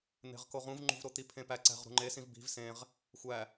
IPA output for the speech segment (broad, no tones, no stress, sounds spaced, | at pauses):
n̪ e̤ ʁ k o ʁ ũ v ŋ͡ǃ ṳ v ɾ o t̪ i pʰ ẽ p æ ǀ æ̤ ʁ ɾ ṳ ŋ͡ǃ e s ĩ v b i̤ v s ẽ ʁ | xʷ æ